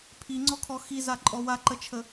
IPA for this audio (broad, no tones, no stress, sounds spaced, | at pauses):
pʰ i ŋ͡ǀ ɔ kʰ ɔ x i z a ǃʼ ɔ w a ǃ ə t͡ʃʰ ə